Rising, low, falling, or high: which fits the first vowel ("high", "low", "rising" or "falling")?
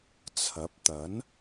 rising